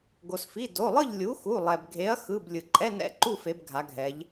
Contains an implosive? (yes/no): no